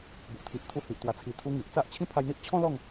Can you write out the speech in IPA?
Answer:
b o˨ ʔ t̪ʰ i˨ ʔ t̪ʰ u˧ h i˨ ʔ t̪ w a˨˩ t͡sʰ i˨˩ t̪ʰ u˧ ŋ i˨ ʔ t͡s a˦ ʔ t͡ɕʰ ĩ˦ pʰ a˧ j n̪ i˦ ʔ t͡ɕʰ ɔ̃˦ l ɔ˥˧ ŋ

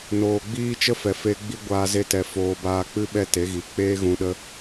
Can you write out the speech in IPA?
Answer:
n oː˨ ɡ͡b iː˦ t͡ʃ ə˦ f ɛ˨ f e˧ ɡ͡b i˦ ɡʷ aː˧ z e˦ t ɛ˧ f oː˧ b aː˧ k͡p ɨ˦ ɓ ɛ˦ t e˨˦ ɣ i˨˦ k͡p eː˦ ɣ ũ˧ ɗ ə˦

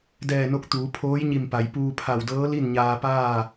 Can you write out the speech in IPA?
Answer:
d ɛː˧˩ n o˧ k̚ t̪ uː˩˧ pʰ oː˧˥ j ɲ i˧˩ m p a˩ j p uː˧ pʰ a˧˩ w d ɤː˧˥ l i˥˨ n ɲ aː˧ p aː˥˨

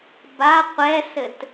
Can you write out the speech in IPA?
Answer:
b a qʷ ɛ s ɘ t

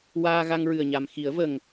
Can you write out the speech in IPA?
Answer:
w aː˧ ɣ a˧ ŋ ɹ ɨ˨˩ ə̯ ɲ a˨˩ m x i˨˩˦ ə̯ v ə˨˩ ŋ

